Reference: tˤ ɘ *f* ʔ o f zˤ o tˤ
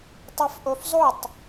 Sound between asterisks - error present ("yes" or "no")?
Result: no